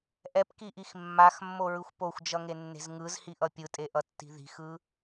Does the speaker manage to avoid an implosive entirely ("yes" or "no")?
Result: yes